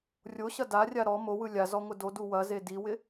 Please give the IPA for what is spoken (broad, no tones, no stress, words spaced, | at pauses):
rʲo ɕɐdarʲa ɾɔ mowɯ lʲazɔ ŋʷɪdodu wɐ zediwɪ